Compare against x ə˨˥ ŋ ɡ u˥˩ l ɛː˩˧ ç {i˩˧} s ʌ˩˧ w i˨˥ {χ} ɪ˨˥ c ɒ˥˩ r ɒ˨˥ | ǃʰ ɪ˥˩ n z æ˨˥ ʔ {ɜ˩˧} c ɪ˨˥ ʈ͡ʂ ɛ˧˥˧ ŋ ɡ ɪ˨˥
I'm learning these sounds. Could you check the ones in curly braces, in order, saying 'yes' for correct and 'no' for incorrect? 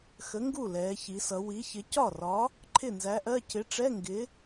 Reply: yes, no, no

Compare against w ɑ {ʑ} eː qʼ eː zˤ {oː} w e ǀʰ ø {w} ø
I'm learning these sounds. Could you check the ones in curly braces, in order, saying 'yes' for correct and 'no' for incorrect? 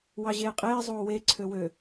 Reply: yes, yes, yes

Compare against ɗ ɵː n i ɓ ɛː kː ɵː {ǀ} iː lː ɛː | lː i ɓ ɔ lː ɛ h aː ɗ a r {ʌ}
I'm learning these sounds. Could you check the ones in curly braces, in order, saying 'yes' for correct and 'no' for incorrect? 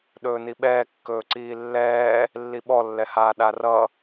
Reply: yes, yes

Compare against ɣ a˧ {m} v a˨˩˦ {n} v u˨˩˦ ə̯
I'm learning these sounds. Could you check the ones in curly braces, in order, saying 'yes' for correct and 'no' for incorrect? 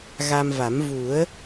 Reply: yes, no

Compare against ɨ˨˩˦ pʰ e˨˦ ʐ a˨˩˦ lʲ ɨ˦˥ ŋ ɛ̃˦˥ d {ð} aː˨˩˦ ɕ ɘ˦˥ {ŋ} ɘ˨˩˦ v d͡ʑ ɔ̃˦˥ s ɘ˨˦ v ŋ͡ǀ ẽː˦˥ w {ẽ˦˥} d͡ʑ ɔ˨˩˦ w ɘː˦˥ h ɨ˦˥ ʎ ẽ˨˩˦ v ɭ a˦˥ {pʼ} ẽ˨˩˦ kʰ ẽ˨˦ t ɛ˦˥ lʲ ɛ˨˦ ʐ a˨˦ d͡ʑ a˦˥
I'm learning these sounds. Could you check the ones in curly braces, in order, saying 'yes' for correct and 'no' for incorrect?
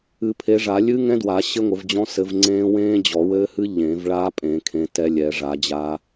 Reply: no, no, no, yes

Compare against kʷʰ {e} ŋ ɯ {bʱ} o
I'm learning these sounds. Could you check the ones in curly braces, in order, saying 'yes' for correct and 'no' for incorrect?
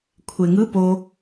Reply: yes, no

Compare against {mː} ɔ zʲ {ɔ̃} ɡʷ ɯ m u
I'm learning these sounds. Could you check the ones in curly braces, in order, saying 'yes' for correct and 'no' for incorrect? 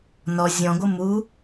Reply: no, yes

